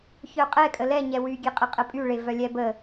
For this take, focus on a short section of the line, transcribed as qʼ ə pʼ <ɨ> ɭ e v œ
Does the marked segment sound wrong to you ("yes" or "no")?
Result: yes